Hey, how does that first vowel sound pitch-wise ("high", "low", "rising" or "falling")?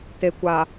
low